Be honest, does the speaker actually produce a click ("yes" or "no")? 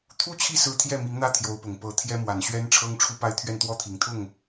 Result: no